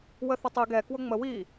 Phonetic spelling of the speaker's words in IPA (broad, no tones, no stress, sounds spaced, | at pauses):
w ə θ ə tˤ i ɡ ɛ k w ʊ ŋ͡m ə w i